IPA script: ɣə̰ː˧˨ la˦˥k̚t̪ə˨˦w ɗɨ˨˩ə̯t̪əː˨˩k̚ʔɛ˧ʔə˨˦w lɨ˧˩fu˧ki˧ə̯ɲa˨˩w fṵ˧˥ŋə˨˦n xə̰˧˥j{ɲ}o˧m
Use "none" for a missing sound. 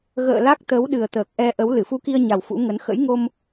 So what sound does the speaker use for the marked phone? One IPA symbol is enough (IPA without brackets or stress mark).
ŋ